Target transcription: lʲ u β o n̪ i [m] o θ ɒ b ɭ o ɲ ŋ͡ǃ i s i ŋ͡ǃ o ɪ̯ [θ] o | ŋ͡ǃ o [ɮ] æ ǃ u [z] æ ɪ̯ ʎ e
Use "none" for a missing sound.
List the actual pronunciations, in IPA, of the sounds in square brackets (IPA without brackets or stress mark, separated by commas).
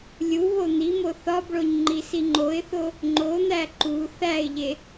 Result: m, θ, n̪, θ